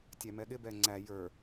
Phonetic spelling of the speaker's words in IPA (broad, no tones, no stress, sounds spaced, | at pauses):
tʲ æ m ɛ ɠ ɪ b ɛ ŋ͡ǀ æ j ə˞